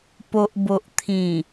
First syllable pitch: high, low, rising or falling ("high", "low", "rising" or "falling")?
low